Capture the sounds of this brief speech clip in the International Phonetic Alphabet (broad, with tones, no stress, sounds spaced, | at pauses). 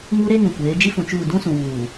ŋ u˦ ɾ e˦ ŋ ũ˨ kʷ eː˨˦ d͡ʒ i˦ f ũ˨ t͡ʃ uː˦˨ d ũ˦ s ũ˨ w uː˨